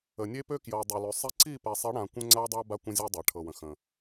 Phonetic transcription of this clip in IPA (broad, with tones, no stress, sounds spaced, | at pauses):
ə˨ nʲ e˦ p ø˦ k j ɤ˨ dˤ ø˨ l ø˨ sˤ i˦ ǀ i˦˨ p ɛ˨ sˤ i˨˦ ɽ ã˨ kʷ ə̃˦ ŋ͡ǀ a˦ dˤ a˦ b a˦ kʷ ə̃˦ zʲ ɤ˦ dˤ a˨ ʈʰ ɤ˨ w ə̃˨ x ə̃˨